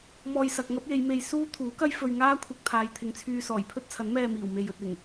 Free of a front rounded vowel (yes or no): no